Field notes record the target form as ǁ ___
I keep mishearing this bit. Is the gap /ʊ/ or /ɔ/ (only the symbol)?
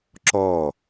ɔ